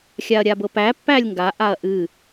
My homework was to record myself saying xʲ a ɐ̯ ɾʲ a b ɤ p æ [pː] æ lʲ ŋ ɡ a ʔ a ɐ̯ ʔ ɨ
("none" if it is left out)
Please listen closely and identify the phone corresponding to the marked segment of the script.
pː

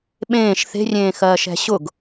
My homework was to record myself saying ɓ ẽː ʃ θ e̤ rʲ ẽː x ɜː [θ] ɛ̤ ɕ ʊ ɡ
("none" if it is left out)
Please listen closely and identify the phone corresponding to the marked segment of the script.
ʃ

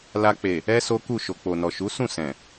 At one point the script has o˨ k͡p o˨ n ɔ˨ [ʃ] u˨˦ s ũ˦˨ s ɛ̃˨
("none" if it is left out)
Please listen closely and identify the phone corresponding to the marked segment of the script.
ʃ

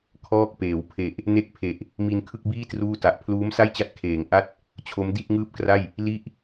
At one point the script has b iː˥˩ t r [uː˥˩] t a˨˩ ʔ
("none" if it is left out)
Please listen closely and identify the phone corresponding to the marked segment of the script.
uː˥˩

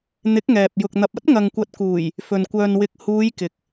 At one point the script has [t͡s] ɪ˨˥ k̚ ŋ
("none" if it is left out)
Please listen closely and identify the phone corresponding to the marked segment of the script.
n̪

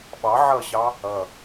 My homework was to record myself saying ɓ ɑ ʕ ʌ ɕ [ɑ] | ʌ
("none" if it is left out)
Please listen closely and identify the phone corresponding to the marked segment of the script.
ɑ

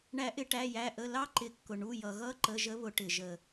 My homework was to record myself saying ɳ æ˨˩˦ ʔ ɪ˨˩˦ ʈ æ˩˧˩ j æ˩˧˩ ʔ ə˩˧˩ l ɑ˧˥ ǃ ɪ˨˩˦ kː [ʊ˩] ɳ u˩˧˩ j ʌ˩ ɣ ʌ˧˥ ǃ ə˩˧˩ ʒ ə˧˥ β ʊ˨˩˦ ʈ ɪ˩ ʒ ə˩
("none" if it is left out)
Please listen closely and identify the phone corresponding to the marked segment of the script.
ʊ˩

